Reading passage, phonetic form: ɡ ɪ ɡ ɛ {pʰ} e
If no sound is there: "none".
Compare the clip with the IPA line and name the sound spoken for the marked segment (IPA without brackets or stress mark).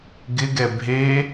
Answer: bʱ